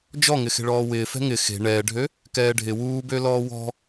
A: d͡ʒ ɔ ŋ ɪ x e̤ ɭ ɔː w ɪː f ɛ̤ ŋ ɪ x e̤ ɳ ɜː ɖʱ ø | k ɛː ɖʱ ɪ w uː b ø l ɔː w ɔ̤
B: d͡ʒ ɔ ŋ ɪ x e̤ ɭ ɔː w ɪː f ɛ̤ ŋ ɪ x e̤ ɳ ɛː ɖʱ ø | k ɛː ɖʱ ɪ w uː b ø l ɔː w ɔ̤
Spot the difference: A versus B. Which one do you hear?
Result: B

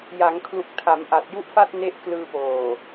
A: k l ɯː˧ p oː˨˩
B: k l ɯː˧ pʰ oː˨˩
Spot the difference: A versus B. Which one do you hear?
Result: A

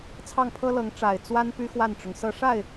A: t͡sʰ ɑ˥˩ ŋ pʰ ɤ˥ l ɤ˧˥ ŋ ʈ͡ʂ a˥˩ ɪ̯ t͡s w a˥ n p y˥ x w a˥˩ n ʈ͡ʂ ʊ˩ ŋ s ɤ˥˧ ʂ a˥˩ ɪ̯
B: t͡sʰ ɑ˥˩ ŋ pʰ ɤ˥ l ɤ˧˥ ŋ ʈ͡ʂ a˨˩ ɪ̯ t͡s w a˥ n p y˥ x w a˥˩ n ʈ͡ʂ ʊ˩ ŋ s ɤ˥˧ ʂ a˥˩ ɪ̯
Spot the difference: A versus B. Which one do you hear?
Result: B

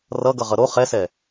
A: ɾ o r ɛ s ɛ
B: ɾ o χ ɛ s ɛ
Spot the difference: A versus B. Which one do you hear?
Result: B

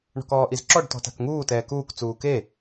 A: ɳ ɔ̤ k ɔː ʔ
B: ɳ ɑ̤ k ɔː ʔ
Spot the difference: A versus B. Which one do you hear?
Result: A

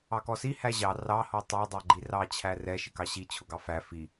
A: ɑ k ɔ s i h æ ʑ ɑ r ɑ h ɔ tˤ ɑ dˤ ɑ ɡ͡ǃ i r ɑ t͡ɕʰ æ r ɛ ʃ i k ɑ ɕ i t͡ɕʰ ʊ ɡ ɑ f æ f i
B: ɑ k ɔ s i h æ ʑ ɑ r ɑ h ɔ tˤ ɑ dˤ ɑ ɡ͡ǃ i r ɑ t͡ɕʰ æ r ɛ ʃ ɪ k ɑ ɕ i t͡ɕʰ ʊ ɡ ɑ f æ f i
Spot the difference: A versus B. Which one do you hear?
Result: B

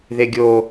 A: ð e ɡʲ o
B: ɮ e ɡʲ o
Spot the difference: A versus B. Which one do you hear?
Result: A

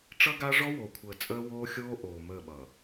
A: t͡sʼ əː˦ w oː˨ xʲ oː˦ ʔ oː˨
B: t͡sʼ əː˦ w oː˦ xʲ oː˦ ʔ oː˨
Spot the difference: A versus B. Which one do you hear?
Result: B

